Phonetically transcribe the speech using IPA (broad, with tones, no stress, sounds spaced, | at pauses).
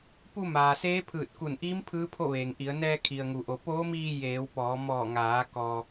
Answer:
p u˧ m aː˩ s eː˧˥ pʰ ɯː˧˩ t̚ k u˧˩ n ʔ iː˧˥ m pʰ ɯː˧˥ pʰ o˥˨ ʋ eː˩ ŋ ʔ i˩˧ ə̯ n ɛː˧ kʰ i˩ ə̯ ŋ u˩ ʔ o˩˧ p oː˧˥ m iː˧ j eː˩˧ w p ɔː˩˧ m ɔː˧˩ ŋ aː˩˧ k ɔː˩